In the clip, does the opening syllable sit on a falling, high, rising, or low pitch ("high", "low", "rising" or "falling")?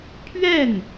falling